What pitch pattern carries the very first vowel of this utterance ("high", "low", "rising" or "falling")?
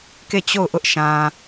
falling